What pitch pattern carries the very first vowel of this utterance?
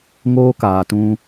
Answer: high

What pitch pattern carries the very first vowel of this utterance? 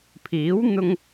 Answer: rising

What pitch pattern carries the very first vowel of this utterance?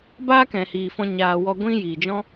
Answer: high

